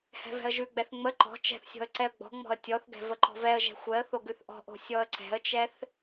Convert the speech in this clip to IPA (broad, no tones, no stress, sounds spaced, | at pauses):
h ɛ̤ v ɛ̤ ə̯ ʒ ʉ ɡ͡b ɛ θ ŋ͡m ə ǃ ɔ̤ t͡ʃ ɛ̤ θ sʲ ɔ̤ ə̯ ǀ ɛ ə̯ ɡ͡b ɔ̤ ŋ͡m ɔ̤ ə̯ tʲ ɔ θ ɡ ɛ̤ v ə ǃ ɔ̤ v ɛ ə̯ ʒ ɛ̤ xʷ ɛ ə̯ θ o ɡ ʉ θ ʔ ɔ̤ ʔ o̤ sʲ ɔ ə̯ ǀ ɛ̤ ə̯ t͡ʃ ɛ θ